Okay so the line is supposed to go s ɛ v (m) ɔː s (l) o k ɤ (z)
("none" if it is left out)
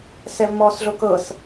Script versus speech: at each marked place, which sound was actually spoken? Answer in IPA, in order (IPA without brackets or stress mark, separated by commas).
m, ɮ, s